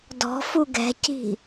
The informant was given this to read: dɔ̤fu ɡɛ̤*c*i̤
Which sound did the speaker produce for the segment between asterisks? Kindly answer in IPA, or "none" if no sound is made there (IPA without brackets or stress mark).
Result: c